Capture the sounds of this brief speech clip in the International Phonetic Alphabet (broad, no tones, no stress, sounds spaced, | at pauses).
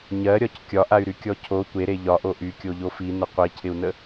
ɲ ɜ ɾʲ ɒ c kʲ ɒ ʔ a y̯ ɾ y kʲ ɔ cʰ o tʷ e ɾ e ʎ ɒ ʔ o ʔ y kʲ o ʎ o f i n ə qʷ i cʰ ɪ u̯ n ə